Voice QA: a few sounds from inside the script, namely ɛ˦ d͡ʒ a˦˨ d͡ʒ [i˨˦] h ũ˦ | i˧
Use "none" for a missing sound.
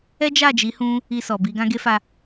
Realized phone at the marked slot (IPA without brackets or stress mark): i˨˦